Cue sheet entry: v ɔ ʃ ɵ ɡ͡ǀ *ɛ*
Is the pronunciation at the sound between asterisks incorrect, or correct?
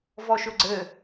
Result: incorrect: ɘ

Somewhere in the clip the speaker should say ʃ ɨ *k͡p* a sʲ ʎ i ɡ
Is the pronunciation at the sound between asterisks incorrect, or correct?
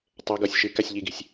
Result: incorrect: k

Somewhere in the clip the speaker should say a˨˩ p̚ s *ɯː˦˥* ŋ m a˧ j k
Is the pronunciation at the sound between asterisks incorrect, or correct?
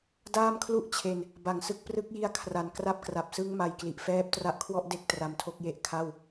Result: incorrect: ɯ˦˥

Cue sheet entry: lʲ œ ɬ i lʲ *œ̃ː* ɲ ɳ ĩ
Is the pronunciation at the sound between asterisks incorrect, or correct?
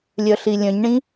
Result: incorrect: œ̃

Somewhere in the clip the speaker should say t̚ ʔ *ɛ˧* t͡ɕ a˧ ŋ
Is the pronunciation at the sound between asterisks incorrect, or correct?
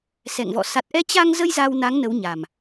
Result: correct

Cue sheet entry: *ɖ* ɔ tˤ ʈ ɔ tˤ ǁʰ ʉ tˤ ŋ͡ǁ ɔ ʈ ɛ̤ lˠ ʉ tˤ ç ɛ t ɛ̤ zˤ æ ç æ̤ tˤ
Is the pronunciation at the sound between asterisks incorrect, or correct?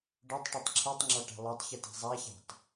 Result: correct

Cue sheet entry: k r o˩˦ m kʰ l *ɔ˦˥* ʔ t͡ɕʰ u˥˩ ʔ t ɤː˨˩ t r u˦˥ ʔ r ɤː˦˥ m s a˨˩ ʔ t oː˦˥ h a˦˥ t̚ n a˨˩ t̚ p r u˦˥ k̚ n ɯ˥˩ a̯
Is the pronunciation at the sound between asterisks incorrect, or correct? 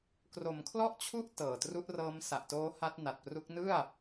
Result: incorrect: ɔ˥˩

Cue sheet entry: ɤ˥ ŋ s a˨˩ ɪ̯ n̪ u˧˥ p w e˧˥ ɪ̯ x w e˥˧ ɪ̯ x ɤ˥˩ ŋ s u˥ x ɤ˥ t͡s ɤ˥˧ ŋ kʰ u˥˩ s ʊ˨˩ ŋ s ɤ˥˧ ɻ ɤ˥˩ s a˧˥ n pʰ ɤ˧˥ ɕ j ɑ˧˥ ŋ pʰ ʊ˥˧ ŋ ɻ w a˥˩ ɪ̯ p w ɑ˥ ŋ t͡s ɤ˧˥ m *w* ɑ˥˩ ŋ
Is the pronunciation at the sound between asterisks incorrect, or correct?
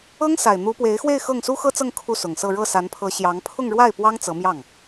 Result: incorrect: j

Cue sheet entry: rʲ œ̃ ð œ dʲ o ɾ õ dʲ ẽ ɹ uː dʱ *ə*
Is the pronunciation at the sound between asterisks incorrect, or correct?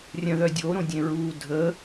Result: correct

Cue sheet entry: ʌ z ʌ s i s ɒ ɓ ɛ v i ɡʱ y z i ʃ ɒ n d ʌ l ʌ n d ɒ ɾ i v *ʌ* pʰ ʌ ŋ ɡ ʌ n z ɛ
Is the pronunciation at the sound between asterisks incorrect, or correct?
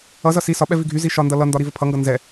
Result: incorrect: ə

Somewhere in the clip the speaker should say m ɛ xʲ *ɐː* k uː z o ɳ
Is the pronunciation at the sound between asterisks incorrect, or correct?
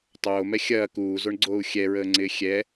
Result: correct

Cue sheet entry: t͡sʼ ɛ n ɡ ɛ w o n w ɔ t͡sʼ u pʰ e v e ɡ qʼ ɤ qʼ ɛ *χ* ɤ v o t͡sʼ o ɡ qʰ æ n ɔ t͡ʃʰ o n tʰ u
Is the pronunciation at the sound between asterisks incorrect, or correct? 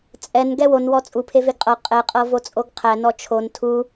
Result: incorrect: qʼ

